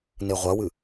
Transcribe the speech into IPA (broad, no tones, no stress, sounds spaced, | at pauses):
n e ʁʷ ɐ w ɨ